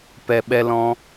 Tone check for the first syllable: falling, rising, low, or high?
low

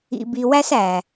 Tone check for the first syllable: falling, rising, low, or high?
low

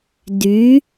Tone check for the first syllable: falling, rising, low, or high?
rising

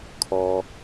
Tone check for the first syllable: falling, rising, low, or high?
low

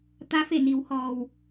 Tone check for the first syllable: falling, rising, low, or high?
rising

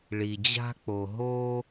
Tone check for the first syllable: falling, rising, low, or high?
low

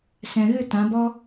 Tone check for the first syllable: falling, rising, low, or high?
low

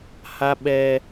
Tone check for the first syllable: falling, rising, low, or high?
high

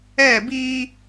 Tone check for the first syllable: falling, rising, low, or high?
falling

